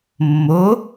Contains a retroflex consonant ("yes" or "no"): no